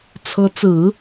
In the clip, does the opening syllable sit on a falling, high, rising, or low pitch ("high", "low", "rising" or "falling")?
rising